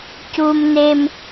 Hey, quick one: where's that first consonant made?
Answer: palate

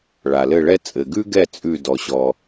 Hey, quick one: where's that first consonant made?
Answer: retroflex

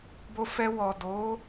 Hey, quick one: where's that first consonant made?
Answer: lips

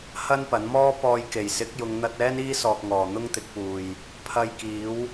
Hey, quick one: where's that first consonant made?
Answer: throat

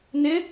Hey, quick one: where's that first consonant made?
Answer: tongue tip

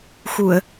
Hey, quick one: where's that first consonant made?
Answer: velum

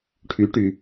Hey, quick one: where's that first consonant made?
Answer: retroflex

